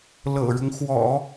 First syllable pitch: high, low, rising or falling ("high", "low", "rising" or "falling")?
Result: low